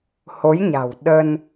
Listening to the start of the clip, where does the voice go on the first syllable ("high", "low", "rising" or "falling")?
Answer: rising